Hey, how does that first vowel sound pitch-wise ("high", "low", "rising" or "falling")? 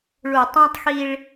low